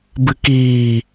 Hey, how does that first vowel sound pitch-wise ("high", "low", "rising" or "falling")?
low